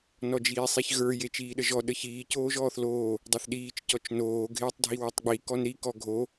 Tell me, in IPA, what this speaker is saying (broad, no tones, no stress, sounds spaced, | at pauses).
n ɔ d͡ʒ iː sˤ i ç ɣ ə˞ j e t͡ʃ iː ɗ ə ʒ ɔ ɗ ə ç iː c oː ʒ ɔː θ l oː | dˤ ə˞ θ ɗ iː t͡ʃ c ɔ t͡ʃ n oː ɡʱ eː tˤ dʱ i w o tˤ ɡ͡b i k ɔ n ɾ i k ɔ ɡʱ o